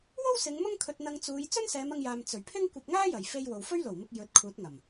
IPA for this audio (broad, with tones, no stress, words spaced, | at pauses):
wo˥wsɪ˨˧ŋ mʊ˥ŋkʰɵ˧t̚ n̪ɐ˧ŋt͡suː˨˧j t͡sɵ˥nsɛː˨˧mɐ˧ŋjaː˨m t͡sɵ˨˩ɥpʰɪ˥ŋ kʷɐ˧p̚ŋaː˥jɐ˨˩j fe˧j wo˨wfɵ˥ɥlo˨˩wmɪ˧k̚ jɵ˨˥t̚kʰuː˨˥t̚ŋɐ˨˩m